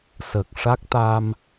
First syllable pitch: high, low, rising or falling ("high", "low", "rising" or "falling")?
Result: low